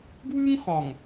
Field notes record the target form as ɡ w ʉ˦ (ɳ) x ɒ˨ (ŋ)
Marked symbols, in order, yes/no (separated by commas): no, yes